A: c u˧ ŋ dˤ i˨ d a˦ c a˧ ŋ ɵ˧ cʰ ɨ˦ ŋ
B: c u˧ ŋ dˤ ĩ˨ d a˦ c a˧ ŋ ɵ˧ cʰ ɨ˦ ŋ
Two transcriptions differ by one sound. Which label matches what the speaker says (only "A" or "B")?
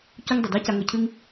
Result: A